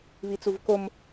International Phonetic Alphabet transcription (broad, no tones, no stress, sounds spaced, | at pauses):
β i t͡s u v k o m